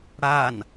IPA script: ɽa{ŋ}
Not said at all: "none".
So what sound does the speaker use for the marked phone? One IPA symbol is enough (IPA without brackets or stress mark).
n